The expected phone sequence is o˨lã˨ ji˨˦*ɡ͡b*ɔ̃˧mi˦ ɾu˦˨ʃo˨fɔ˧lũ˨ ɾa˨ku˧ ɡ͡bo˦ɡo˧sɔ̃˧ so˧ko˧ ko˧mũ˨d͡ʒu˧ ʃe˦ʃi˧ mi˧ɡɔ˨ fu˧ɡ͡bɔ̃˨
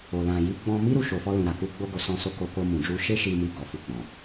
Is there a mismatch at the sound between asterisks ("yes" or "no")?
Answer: no